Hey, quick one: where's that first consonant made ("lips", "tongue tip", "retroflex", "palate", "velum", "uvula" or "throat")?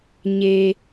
palate